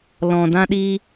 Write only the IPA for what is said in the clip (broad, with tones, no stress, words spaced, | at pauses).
lɔ̃˨dã˦ɗi˦